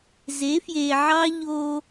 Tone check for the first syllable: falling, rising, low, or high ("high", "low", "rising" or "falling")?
rising